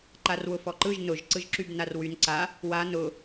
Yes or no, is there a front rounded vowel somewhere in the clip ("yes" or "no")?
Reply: yes